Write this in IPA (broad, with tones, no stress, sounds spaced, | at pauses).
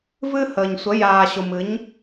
v ɨ˦ h əː˨ ɲ sʷ ə˨˦ j aː˨ ɕ ʊ˨ m ɨ˨˦ ɲ